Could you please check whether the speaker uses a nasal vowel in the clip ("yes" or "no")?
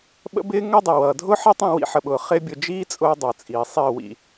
yes